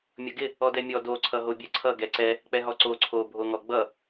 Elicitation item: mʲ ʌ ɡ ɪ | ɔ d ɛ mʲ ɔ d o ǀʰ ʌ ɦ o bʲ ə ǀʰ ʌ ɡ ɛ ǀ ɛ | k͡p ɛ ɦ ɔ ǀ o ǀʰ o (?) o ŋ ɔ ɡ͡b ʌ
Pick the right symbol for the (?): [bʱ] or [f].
bʱ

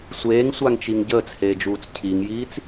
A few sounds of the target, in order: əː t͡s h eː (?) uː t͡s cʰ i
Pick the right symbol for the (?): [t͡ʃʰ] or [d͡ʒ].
d͡ʒ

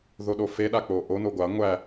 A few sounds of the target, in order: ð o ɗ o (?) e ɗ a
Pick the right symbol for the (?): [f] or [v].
f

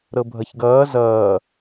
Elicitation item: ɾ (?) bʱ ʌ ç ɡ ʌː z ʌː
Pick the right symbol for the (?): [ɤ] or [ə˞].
ɤ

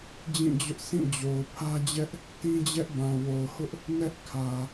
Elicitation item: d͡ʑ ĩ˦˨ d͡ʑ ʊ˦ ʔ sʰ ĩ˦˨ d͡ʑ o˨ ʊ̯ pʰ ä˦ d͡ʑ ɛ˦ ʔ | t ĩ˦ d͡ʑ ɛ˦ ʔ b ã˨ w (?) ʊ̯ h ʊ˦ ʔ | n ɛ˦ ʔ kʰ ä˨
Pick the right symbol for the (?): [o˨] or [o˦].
o˨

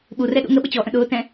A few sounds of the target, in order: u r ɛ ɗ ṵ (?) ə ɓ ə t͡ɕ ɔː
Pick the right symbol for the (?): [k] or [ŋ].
ŋ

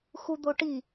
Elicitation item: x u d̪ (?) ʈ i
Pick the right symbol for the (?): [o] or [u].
o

